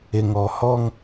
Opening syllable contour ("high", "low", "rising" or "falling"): low